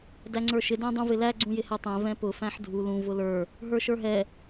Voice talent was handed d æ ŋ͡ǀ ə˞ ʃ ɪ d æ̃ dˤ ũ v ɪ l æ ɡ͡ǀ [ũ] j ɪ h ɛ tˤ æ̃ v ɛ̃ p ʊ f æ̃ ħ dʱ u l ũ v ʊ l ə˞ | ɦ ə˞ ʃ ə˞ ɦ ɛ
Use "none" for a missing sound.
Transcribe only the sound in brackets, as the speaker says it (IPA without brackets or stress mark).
ũ